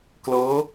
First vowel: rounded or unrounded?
unrounded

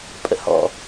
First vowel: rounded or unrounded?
unrounded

